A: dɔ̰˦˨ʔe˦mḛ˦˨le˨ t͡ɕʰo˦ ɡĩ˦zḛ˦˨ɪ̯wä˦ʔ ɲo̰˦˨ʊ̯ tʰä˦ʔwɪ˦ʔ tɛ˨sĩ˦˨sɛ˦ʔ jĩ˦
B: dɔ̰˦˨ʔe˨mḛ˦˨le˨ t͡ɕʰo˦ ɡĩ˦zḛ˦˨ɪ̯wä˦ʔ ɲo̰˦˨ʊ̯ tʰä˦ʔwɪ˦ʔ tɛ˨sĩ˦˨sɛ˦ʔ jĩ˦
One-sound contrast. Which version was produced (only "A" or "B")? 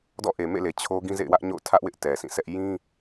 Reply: B